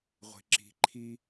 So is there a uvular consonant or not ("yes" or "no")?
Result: yes